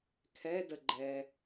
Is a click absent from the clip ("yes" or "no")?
no